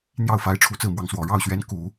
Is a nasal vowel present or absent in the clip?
absent